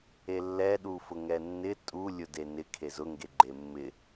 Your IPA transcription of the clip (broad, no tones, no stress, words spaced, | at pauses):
elːɛ ɗufʊŋɛnːɪ tʼu lʲʊdenɪ kʰezʊ ŋɡeɡ͡ǃemːɪ